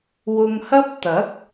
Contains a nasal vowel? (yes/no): no